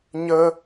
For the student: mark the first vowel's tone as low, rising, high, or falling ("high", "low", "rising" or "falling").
high